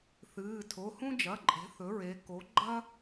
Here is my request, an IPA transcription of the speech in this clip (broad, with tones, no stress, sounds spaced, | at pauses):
θ ɨː˩˧˩ tʰ o˩˧˩ h ũ˥ d͡ʒ ɐ˩˧˩ ǃʼ e̤˩˥ θ ɵ˩˥ ɹ e˩˧ k o˩˥ ɡ͡ǃ ɐ˥